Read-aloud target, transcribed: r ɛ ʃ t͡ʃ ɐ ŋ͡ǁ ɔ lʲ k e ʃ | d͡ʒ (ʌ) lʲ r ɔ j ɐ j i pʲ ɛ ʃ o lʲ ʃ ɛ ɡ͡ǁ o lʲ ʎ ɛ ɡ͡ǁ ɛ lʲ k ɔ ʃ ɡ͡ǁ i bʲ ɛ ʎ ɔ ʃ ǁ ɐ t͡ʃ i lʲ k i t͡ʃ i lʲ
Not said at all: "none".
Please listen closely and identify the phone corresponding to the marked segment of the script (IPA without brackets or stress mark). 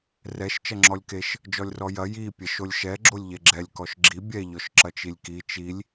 ɔ